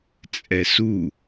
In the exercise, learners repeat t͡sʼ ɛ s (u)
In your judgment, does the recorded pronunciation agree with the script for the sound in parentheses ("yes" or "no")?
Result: yes